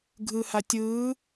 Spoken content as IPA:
ɡʱ ɯ h a tʲ ɯː

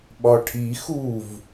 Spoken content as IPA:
ɓ ɒ ʈʰ i x u v

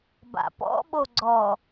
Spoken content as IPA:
b a̰ p ɔ̰ ɓ o ɡ͡ǀ ɔ

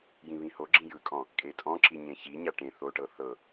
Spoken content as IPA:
j ĩ β ĩ h o ɡ͡ǁ ĩ j ɯ kʼ ɔ̃ | kʼ e tʼ ɔ̃ ǁ i ɲ ẽ ç i ɲ a ʈ ẽ θ o ʈ ɤ θ ɤ

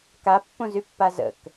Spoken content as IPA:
k a pː õ z y pː a z ə̰ k

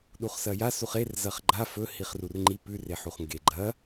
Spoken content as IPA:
ɗ u χ s ɐ j a s u χ e r z ɐ χ ɡ͡ǃ a f ɵ h i χ r u r ŋ͡ǃ i p ʉ r e ħ u χ ŋ ɡ e ɡ͡ǃ ɐ

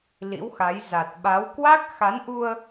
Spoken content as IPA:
l ḭ˧˥ w x a˨˦ j z a˨˩ t̚ ɓ a˨˦ w k w a˦˥ k̚ x a˨˦ n ʔ u˧ ə̯

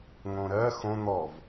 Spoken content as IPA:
ŋ õ ɾ ɜ x õ n̪ ɔ v

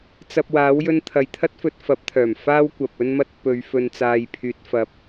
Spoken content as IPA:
t͡s ɐ˧ p̚ w aː˨˥ w j ɵ˧ n t̪ʰ ɐ˨˧ j t̪ʰ ɐ˥ t̚ f ɵ˧ t̚ f ɐ˨˥ p̚ t̪ʰ œː˨˩ m f aː˥ w kʷ ɐ˨ p̚ ɵ˧ n m ɐ˧ t̚ p ɵ˨˧ ɥ f ɵ˨ n t͡s aː˨ j pʰ yː˨ t̚ f ɐ˨ p̚

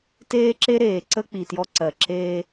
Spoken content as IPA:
t eː˦ ǁ e˦ ɾ eː˨ ǀ ə˦ k͡p i˨ t j ɔ˦ ǀ ɜ˨ ǁ eː˦

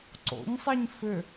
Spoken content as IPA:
ǀ o̰ ɲ sˤ i ɲ f ʏ

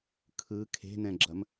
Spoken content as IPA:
kʰ ɯ kʰ e̤ n ɛ̃ ɡ͡ǁ ɐ m

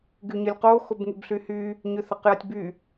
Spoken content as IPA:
ɡ y ɲ ə lʲ q o x o b ŋ y b ɬ y h y | ɲ ʏ θ ɐ q j ɐ tʲ b y

